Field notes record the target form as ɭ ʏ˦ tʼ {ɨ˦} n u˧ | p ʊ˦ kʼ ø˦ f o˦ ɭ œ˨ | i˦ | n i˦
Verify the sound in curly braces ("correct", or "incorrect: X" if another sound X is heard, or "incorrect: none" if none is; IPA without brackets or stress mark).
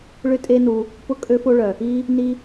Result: incorrect: e˦